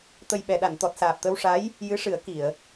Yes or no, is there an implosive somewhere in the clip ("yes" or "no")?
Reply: yes